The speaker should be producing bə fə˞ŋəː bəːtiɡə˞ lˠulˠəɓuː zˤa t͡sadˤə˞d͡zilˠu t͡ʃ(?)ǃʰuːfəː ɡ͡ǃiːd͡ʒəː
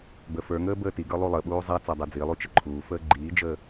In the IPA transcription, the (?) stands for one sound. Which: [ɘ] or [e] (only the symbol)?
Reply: ɘ